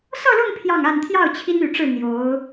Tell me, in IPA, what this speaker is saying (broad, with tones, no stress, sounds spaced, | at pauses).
s ɤ˥˧ l ʊ˥˧ ŋ pʰ j ɑ˥˧ ŋ a˥˧ n t̪ʰ j ɑ˥˩ ʊ̯ t͡ɕʰ i˥ n y˨˩ ʈ͡ʂ ɻ̩˥˩ n̪ j o˧˥ ʊ̯